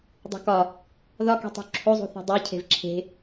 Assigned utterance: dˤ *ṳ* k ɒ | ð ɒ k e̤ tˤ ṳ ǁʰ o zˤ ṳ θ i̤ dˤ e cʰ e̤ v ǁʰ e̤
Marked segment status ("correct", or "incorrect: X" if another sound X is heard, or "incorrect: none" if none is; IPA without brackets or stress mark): correct